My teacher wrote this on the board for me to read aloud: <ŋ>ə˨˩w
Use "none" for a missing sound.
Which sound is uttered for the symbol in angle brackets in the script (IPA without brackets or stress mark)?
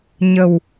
ɲ